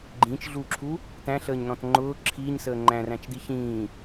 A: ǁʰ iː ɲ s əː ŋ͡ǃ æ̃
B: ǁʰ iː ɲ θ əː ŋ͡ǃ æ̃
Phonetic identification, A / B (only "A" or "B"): A